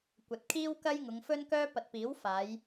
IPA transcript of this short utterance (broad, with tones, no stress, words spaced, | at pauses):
kʷɐ˨t̚kʰiː˥w kɐ˥jŋʊ˨˧ŋfɵ˥nkœː˥ pɐ˨t̚piː˨˥w faː˨˧j